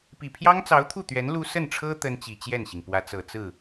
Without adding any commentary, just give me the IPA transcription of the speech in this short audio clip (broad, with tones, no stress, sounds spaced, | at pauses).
p i˨˩ pʰ j ɑ˥ ŋ t͡s ɑ˧˥ ʊ̯ t̪ʰ u˥˩ t̪ ɥ ɛ˧˥ n l u˥ s ə˥˩ n ʈ͡ʂʰ ɤ˥ t̪ ə˥ n t͡ɕ i˨˩ t͡ɕ j ɛ˥˩ n ɕ i˩ ŋ p w ä˧˥ t͡s ɤ˨˩ t͡s ɹ̩˥˩